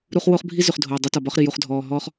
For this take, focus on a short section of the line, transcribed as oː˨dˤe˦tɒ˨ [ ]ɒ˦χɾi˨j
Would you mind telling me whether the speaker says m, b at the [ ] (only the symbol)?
b